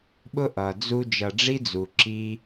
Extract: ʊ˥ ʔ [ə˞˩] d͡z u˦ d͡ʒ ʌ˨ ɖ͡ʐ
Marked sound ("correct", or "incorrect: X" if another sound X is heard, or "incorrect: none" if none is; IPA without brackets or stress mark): incorrect: ʌ˩